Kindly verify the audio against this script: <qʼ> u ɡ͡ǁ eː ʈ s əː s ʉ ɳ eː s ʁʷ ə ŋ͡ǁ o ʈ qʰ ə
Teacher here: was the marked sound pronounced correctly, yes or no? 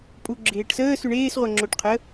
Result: no